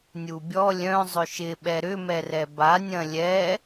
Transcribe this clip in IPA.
nʲubʲɔ lʲœ̃ zˤʏʃɪ ɓɛɾʏ mɛrɛba nʲɐ̃lʲɛ

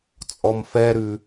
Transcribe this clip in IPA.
t͡sʼɔmfɛɾʉ

